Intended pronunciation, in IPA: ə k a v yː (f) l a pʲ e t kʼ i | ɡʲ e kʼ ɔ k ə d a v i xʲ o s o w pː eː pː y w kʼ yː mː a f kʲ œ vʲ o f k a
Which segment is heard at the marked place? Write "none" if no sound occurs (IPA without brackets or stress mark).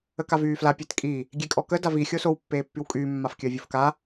f